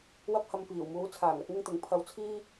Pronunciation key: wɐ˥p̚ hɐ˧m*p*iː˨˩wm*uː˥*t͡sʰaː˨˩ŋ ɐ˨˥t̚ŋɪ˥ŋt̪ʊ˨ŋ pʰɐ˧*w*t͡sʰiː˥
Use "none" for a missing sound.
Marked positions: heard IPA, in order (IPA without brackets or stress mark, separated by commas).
p, uː˨˥, w